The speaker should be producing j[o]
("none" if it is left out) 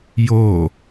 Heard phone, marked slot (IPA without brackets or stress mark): o